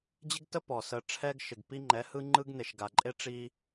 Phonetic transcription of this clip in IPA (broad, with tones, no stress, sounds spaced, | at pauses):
d͡ʑ ɪ˦ ɡ t ə˦ p ɔ˨ s ə˧ ʈ͡ʂʰ ɛ˦ ɡ ʃ ɪ˨ ɡ p i˦ ŋ͡ǃ ɛ˨˦ h ɯ˦ ŋ͡ǃ ɯ˦ ɡ n e˨ ʃ ɡ a˨ ǃʼ e˦ ʈ͡ʂ i˧